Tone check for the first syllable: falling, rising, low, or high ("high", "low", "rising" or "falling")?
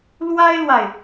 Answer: high